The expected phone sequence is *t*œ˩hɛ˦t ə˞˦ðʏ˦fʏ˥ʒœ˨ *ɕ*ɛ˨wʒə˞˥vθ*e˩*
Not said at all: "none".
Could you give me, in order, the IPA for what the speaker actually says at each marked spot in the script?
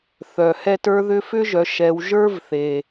θ, ʃ, e˩

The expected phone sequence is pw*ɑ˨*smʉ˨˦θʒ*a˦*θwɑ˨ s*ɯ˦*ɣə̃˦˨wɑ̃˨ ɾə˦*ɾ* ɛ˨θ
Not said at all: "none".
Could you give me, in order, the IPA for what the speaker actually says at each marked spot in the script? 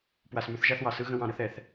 a˨, a˦, ɯ˦, θ

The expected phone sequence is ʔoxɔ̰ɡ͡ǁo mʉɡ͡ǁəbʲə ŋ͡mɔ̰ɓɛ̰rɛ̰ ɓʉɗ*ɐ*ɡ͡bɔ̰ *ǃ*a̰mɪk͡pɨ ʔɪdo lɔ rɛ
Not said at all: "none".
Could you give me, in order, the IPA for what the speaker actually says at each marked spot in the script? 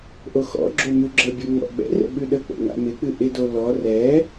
ə, ŋ

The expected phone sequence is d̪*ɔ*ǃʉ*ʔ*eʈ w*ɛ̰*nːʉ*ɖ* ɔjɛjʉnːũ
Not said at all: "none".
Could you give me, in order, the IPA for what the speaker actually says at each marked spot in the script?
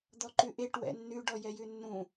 ɔ, ʔ, ɛ̰, ɖ

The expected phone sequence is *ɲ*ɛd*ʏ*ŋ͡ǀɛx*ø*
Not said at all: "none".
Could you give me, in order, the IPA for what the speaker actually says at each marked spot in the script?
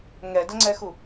ŋ, ə, u

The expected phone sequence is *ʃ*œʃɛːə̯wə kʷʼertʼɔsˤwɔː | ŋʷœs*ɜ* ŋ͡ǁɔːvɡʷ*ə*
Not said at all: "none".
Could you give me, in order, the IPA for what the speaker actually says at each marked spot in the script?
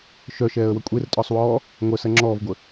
ʃ, ɜ, ə

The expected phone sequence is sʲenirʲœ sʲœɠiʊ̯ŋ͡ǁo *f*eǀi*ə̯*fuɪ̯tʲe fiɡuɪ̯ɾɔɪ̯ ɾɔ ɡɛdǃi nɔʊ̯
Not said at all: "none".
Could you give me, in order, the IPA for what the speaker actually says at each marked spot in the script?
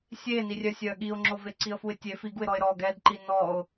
v, ə̯

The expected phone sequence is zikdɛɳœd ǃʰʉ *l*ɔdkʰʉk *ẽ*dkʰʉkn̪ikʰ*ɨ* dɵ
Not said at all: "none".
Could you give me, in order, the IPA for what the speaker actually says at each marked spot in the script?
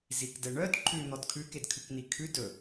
n̪, e, ʉ

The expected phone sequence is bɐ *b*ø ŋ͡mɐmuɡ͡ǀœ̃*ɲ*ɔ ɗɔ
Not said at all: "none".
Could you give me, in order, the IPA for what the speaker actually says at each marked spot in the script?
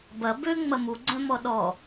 b, m

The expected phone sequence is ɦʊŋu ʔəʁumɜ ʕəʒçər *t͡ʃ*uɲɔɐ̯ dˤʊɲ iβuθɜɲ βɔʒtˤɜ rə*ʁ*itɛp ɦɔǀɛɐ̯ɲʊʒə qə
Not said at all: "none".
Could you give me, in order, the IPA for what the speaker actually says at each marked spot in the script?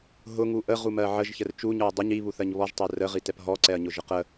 t͡ʃ, ʁ

